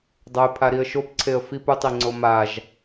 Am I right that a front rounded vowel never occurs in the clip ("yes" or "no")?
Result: yes